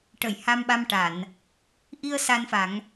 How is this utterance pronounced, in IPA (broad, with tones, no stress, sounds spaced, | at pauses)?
ʈ ə˨˩˨ j h a˧ m ɓ a˧ m ʈ a˨˩˨ n | ʔ i˧ ə̯ s a˧ n f a˨˩˦ ŋ